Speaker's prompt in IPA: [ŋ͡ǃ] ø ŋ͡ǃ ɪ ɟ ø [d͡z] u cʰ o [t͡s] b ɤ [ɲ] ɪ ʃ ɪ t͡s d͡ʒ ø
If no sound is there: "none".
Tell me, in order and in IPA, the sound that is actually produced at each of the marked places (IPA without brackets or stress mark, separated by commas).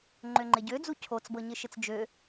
ŋ͡ǃ, d͡z, t͡s, ɲ